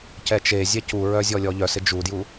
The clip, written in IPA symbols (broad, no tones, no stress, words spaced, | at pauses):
cɛt͡ʃezʲɛ cuɹœ zʲɔlʲɔʎœsɪ d͡ʒudju